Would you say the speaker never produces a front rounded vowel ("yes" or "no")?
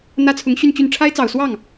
no